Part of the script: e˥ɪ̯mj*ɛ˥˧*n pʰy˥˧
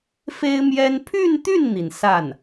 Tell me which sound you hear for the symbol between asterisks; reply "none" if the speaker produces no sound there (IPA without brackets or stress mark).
ɛ˥